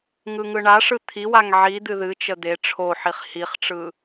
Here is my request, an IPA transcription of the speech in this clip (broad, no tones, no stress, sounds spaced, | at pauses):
ŋ ɯ ŋ ɯ ɳ a ʂ ɯ t̪ʰ i w a ŋ ʕ i d̪ ɨ ð ɨ t͡ʃ ə d̪ e ʈ͡ʂʰ o ħ i χ h i χ ʈ͡ʂ ɯ